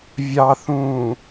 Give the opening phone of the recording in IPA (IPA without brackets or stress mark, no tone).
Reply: vʲ